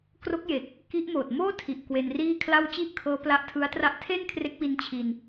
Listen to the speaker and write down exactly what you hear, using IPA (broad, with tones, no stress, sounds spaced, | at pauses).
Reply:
k r o˦˥ k̚ j e˨˩ k̚ | k i˦˥ ʔ m oː˨˩ t̚ m oː˥˩ tʰ i˨˩ ʔ k w e˧ n r iː˥˩ kʰ l a˥˩ w t͡ɕ i˥˩ ʔ kʰ ɤː˦˥ p l a˦˥ ʔ tʰ ɯ˦˥ a̯ t r a˦˥ ʔ tʰ e˥˩ n kʰ r e˦˥ k̚ w i˧ n t͡ɕʰ i˧ n